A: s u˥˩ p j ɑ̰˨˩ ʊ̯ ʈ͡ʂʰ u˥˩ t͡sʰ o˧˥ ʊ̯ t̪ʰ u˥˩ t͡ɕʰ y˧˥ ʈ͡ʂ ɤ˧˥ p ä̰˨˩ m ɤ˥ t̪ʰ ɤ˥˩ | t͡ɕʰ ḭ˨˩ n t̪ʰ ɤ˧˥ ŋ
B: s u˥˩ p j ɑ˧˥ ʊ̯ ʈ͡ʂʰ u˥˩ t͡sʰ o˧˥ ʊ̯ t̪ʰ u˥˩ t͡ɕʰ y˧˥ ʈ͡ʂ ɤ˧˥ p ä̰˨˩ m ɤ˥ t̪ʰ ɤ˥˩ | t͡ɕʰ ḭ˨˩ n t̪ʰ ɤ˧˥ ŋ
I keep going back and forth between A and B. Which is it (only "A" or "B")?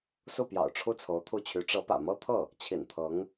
A